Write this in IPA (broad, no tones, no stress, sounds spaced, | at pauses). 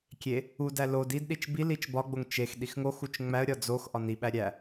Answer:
kʲ e | u d æ l o d i d ɗ i t͡ʃ b i l i t͡ʃ b ɒ ɡ͡b o ŋ t͡ʃ e x ɗ i x ŋ o x u t͡ʃ ŋ͡m æ ə̯ ɾʲ ɒ d͡z o x ʔ ɒ n i ɓ æ ɾʲ æ